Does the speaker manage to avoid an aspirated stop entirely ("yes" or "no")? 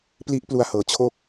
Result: no